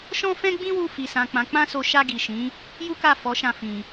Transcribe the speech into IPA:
ʃ ɔ̃˦ f ɛ̃˦ ɡ͡b ĩ˦ w u˧ f i˨ s ã˨ k͡p ã˨˦ k͡p ã˦ s o˧ ʃ a˧ ɡ i˨ ʃ ĩ˨˦ | j u˦ k a˦˨ f ɔ˨˦ ʃ ã˧ f ĩ˧

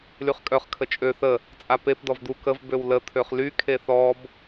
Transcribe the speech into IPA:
l y χ kʼ œ χ kʰ ə t͡ʃʼ ø θ ə | t͡sʼ a p e p d ɔ v d̪ u k ə v b ø w l ə t̪ʰ ø χ l y kʰ e θ ɔ b

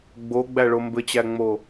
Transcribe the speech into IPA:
ɡ͡b o ɡ͡b æ ɭ o m b ɘ t͡ɕ æ ŋ͡m o

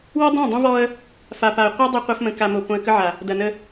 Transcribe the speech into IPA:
w ɛ˦ dˤ ã˦˨ dˤ õ˦ v ɔ˦ ə̯ | f a˨ p a˨ ə̯ qʷ e˦ dˤ ə˦ qʷ ɐ˦ f m ə̃˨ k a˨ m o˨ p õ˨ ə̯ k ə˦ ʕ a˨ | d ɐ˨ n ə˦

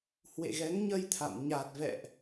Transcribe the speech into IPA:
h w ḛ˧˨ ɣ ɛ˨˦ ŋ ɲ ə˧ j t̪ʰ a̰˧˨ m ɲ a˨˩ t̚ v ɛ̰˧˨ ʔ

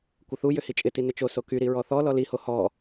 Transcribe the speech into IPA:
kʷ ɪ θ u j ʏ h i t͡ʃʼ ɪ t i n ɪ t͡ʃ o s o k y ɾ i ɹ ɔ θ ɔ l ɔ l i h o h ɔ

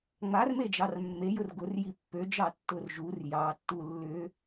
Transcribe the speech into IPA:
ŋ͡m a r m e d͡ʒ ɑ r mː e j ʊ r ɡ ʊ r j i pː ø d͡ʒ ɑ tː ʊ r ʒ u r j ɑ tː u lː ʏ

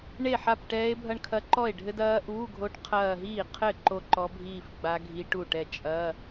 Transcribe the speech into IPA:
ɳ e˥˩ ħ a˥˩ p ʈ ɛː˦˥ e̯ bʱ ɐ˥˧ ɳ kʰ ɐ˦˥ ǃ ɔ˥˩ e̯ ɖʱ ɘ˦˥ d ɐː˦˥ ʔ uː˧˥˧ ɡʱ o˦˥ ʈ qʰ ɐː˥˧ ɦ iː˥˩ qʰ ɘ˥˩ ǃ o˥˧ ǃ ɔ˦˥ bʱ iː˥˧ f ɡ͡b a˦˥ ɡʱ i˦˥ ʈ u˥˩ ʈ ɛ˥˩ t͡ʃʼ ɐ˧˥˧

